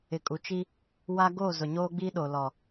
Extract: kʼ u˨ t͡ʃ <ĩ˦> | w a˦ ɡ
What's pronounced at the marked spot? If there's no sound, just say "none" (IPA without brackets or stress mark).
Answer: i˦